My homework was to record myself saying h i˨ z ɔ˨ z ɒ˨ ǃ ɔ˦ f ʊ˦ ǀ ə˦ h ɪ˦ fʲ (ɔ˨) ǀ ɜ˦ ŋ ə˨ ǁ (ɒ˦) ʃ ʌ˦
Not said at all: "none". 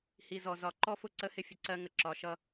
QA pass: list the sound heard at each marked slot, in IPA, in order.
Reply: ə˨, ɒ˨

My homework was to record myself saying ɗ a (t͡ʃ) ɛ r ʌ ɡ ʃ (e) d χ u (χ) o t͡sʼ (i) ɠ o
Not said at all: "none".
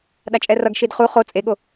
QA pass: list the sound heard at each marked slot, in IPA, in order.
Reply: t͡ʃʼ, i, χ, e

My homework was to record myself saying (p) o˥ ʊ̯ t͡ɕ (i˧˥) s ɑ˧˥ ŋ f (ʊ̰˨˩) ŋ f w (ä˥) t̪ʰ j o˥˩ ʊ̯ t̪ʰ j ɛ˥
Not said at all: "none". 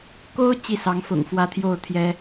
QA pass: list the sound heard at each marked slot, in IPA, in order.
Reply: k, i˥˩, ʊ̰˨˩, ä˥

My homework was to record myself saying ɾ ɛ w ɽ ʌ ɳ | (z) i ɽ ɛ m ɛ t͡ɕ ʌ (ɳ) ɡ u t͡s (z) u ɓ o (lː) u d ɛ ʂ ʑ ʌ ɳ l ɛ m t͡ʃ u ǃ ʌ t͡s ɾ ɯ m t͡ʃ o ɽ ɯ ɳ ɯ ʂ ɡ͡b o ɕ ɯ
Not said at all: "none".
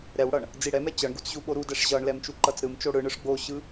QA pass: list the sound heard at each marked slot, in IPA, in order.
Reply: d͡z, ɳ, ʑ, ɾ

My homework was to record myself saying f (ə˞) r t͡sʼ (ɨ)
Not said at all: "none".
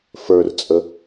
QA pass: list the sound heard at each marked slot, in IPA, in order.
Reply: ə˞, ə

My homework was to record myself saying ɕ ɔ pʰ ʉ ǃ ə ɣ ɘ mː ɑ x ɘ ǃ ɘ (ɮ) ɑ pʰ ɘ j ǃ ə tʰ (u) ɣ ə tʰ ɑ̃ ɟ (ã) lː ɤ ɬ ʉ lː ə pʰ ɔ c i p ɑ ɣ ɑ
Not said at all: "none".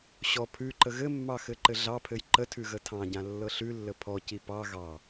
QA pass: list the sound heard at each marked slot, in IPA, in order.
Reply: ɮ, ʉ, ã

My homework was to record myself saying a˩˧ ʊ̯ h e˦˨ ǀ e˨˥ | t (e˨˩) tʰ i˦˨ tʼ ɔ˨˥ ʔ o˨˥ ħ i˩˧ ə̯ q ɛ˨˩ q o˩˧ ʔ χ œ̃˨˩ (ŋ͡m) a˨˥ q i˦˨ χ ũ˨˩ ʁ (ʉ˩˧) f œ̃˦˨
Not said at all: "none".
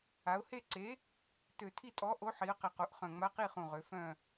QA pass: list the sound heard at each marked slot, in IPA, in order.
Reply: ø˨˩, ŋ͡m, ø˩˧

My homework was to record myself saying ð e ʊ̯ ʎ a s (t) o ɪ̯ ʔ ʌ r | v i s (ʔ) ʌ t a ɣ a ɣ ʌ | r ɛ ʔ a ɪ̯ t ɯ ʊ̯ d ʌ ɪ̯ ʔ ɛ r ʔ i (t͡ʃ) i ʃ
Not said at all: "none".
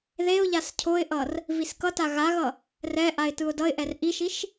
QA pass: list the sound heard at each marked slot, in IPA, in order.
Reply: cʰ, k, ʃ

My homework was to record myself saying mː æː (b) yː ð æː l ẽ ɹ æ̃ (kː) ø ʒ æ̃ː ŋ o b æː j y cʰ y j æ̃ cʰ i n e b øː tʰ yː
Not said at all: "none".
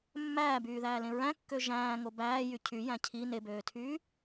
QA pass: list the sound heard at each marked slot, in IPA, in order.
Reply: b, kː

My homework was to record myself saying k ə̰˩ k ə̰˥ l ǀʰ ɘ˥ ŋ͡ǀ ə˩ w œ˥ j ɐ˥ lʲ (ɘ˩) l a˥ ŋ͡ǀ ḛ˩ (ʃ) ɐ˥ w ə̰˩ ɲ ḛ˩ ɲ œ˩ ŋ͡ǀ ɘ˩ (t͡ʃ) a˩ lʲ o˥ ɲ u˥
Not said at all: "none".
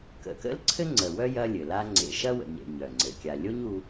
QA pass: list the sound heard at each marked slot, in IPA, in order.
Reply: ɘ˩, ʃ, kʲ

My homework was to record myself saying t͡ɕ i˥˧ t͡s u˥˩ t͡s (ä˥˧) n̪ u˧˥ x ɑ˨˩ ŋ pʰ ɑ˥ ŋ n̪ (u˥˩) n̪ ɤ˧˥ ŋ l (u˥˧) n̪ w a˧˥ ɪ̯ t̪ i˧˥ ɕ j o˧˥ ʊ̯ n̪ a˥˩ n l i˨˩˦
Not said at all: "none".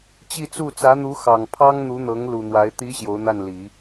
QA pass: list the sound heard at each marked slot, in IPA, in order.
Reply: ä˧˥, u˧˥, u˨˩

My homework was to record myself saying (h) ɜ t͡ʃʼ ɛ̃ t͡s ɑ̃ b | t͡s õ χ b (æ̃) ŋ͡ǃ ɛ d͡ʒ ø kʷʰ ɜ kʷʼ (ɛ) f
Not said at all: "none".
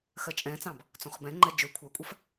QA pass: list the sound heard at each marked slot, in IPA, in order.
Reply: x, ɛ̃, ɜ

